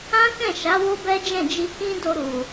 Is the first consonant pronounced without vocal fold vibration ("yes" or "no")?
yes